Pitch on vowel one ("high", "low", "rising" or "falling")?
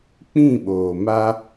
falling